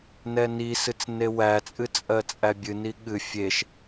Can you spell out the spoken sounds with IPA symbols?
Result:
nɛnisɨt͡s newæt͡sʼɨ t͡sʼɜt͡sʼæbʲɨni ɠɨ fʲeʃ

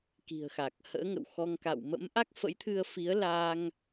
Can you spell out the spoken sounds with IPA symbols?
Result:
ki̤˨˩ə̯xa˨˩k̚ hə̰ː˧˥ŋə̰˧˨wxɔ˧ŋ ka̰˧˨w mə̰˧˥mʔa˦˥k̚fə̰˧˥jt̪ʰɨ˧ə̯ fi˨˦ə̯laː˧ŋ

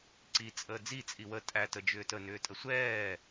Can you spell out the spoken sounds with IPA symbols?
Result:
ǀi t͡sʼəːd͡zi t͡sʼiwə tʼæt əd͡ʒʏːtə nʏːtʼəsʷɛː

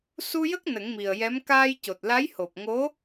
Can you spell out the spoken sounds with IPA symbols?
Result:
su˧jə˦˥k̚ nə˨˩˦ŋmi˨˩ə̯jɛ˧˥m kaː˧j co˨˩t̚la˧˥jho˨˩p̚ ŋo˧˥

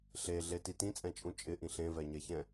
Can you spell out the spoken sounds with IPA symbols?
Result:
ɬeɮeti tĩt͡sʼɛ̃t͡ʃʼũ t͡ʃʼɪʔĩ ɬẽvɛɲɛçɛ̃

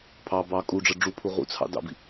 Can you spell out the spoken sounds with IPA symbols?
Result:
pʰɑ bɑ kʼuɖ͡ʐɜ ɖ͡ʐupʰu ʁṵt͡sʰɑ̰ dɑ̰bḭ

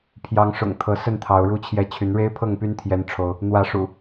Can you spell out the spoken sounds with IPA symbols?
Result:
pʰjɑ˨˦ŋʂʊ̰˨˩ŋ t̪ʰɤ˨˦ sə˥˨nt̪ʰɑ˨˦ʊ̯ɻu˥˨t͡ɕʰjɛ˦ t͡ɕʰy˨˦nɻe˦ɪ̯pʰɤ˥˨ŋpy˦n t̪ʰjɛ˦nʈ͡ʂʰo˦ʊ̯ | n̪wä˨˦ʂṵ˨˩

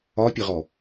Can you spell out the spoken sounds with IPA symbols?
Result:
ɒpʲəʁɔ

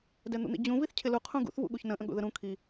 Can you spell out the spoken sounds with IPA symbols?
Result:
dɛn̪ṵn̪ḭd͡ʑũ viθcʰɪlu qʰũɡṵθ vṵɠuçnə̃ ʔə̃ɠṵðəɾũ kʰi

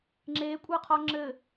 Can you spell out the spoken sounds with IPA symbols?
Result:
ŋ͡ǁekʷʼɤqʰɔ ŋ͡ǁɘ

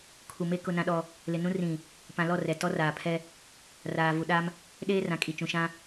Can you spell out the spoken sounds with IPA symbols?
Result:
kʰu˨me˦ kʊ˦nã˦ɗɔ˦ | lɪ˨nũ˦ rĩ˨ | pã˨lɔ˦˨ rɛ˨ tɔ˦raː˨pʰɛ˦ | raː˨vu˨ɗa˦m | ɗeː˦rã˨kʼi˨ t͡ʃũ˨ʃã˦

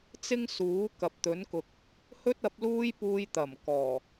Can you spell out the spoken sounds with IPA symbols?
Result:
t͡sɪ˥ŋsuː˨˥ kɐ˨p̚t̪ɵ˨˥nkʊ˨k̚ | hɵ˥t̚ɐ˨˥p̚luː˥j puː˧jt̪ɐ˨˩m kɔː˨˩

